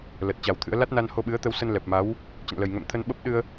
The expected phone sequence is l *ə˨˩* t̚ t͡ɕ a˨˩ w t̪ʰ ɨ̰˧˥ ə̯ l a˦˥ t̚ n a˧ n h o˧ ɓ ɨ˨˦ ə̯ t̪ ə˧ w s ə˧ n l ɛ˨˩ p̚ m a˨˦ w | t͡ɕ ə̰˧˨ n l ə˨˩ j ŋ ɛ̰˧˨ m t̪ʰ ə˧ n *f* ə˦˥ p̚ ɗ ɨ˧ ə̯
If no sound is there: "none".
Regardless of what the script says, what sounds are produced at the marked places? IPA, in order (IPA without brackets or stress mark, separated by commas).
ə˨˩, ɓ